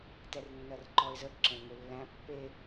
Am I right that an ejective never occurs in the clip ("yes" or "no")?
yes